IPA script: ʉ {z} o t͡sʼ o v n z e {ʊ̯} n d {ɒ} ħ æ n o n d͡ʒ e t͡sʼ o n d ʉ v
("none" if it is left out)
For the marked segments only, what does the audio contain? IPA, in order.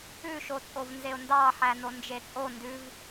ʃ, ʊ̯, ɑ

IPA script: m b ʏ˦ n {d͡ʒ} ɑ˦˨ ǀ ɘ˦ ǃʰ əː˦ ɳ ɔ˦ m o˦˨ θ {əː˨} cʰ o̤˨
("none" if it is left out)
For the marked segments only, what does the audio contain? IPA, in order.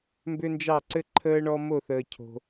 d͡ʒ, əː˨

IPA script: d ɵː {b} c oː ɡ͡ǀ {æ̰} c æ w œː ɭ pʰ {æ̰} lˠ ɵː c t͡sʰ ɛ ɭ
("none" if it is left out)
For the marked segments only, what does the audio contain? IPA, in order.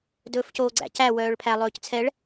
f, æ̰, æ

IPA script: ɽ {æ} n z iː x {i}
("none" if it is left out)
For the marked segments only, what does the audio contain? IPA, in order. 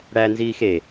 æ, e

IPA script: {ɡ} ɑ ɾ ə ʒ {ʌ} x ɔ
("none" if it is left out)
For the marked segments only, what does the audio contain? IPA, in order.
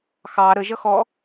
x, ʌ

